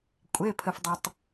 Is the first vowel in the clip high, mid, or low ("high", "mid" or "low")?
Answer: mid